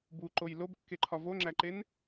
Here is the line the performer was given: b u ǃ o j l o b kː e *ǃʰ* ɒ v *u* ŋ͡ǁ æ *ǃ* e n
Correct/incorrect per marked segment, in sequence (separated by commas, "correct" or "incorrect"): correct, incorrect, correct